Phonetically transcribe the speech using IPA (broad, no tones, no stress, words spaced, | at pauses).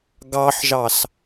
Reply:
ɡɑħʒɑs